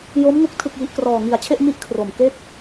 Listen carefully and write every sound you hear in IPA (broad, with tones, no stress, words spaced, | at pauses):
jo˦˥mŋu˦˥k̚ tʰɯ˥˩k̚ji˦˥ʔ krɔː˨˩ŋi˨˩a̯t͡ɕʰe˥˩ʔ mi˥˩ʔ kʰro˨˩mke˥˩k̚